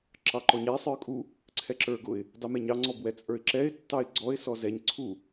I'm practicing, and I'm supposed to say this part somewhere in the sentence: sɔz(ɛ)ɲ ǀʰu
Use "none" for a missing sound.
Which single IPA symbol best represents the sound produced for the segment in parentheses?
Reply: ɛ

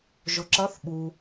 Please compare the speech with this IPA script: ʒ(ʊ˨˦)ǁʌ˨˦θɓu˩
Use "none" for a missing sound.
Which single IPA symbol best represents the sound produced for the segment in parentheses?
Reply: ʊ˩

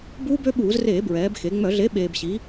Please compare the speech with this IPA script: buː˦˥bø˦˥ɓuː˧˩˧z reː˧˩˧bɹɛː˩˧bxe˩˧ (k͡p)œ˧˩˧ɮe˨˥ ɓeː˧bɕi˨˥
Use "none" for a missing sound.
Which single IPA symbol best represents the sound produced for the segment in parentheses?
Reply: ŋ͡m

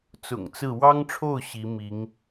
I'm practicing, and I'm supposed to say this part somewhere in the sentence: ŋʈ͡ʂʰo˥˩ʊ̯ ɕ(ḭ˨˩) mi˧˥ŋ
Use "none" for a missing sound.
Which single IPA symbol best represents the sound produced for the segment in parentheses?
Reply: i˧˥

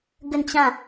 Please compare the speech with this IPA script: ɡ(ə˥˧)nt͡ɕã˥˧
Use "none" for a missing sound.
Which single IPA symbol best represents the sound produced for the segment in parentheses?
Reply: ə˥˧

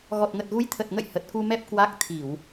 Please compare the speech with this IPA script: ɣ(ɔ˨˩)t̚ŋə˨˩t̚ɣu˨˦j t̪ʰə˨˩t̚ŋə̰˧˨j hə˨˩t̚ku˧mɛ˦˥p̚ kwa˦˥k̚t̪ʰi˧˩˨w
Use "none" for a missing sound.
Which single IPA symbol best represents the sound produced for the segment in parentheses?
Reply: ɔ˨˩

